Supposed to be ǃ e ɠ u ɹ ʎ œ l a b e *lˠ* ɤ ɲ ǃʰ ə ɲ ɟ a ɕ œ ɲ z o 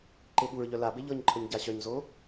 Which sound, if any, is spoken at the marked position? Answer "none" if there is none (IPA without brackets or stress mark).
ʎ